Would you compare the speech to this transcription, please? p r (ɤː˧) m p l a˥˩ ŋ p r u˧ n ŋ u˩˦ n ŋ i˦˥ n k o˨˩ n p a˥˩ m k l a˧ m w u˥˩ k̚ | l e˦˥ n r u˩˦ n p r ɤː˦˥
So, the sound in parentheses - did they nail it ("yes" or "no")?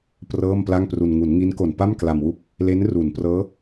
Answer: no